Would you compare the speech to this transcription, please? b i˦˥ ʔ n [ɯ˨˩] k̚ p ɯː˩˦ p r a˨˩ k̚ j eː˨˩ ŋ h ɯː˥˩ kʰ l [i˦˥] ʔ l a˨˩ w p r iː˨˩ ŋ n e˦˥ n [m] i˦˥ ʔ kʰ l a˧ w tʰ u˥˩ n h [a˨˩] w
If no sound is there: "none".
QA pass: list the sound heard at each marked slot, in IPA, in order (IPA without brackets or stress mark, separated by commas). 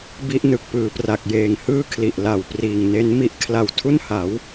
ɯ˨˩, i˨˩, m, a˩˦